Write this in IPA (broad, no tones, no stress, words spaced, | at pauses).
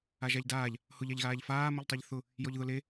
aʒaʎdaːʎ | hʊʎ aʎɣaːʎfaː mʊʎtˤeʎθʊ | jɔʎðʊle